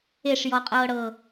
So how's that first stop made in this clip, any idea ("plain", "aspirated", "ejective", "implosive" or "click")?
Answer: ejective